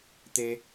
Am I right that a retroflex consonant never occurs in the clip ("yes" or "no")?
yes